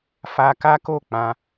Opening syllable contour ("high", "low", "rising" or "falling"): high